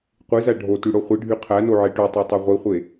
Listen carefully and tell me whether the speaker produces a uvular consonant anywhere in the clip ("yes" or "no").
yes